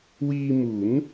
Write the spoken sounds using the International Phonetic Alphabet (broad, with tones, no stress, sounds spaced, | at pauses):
w iː˧ m u˩˦ n